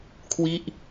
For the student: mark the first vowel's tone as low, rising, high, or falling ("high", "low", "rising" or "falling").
falling